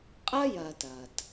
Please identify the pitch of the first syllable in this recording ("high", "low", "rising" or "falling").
high